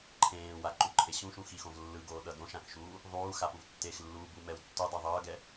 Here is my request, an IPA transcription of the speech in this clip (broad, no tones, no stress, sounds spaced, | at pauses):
ǃʰ ẽː w a ǃ u ǃʰ e ɕ ũ ʃ ũ x i x õ v lː ɯ ɡ oː ɗ ʌ d õ ʃ ã k ʃ uː | ðˤ uː x a p u v tː e x lː uː b u m ɛ w tː u dˤ ɛ ðˤ ʌː ɡ ɛ